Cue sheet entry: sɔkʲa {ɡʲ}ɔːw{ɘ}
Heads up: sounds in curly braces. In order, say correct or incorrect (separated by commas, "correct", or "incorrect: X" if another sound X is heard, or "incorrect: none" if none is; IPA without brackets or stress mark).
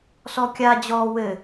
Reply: incorrect: d͡ʑ, correct